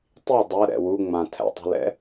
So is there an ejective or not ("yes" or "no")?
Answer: no